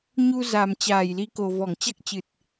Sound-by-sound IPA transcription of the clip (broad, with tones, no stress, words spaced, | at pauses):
ɲu˧za˨˩m t͡ɕaː˧˩jli˨˦ko˨˩ vɔ˧˩ŋt͡ɕa˦˥k̚t͡ɕɨ˨˩t̚